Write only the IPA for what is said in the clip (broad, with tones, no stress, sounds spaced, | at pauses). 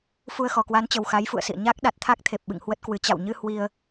f u˧ ə̯ x ɔ˨˩ k w a˨˦ n t͡ɕ ə˨˩ w x a˨˦ j f ṵ˧˨ ə̯ s ḭ˧˨ ə̯ ɲ a˦˥ k̚ ɗ a˨˩ t̚ t̪ʰ a˦˥ k̚ t̪ʰ e˨˩ p̚ ɓ ɨ̰˧˨ ŋ h w ə˦˥ t̚ k w ɨ˨˦ t͡ɕ a̰˧˨ w ɲ ɨ˧ h w i˧ ə̯